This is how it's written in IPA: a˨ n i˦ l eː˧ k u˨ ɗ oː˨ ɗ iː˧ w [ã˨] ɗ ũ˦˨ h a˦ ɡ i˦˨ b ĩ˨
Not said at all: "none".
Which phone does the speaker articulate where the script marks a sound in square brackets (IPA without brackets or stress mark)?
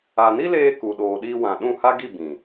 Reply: ã˨